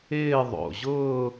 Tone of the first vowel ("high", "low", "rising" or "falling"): falling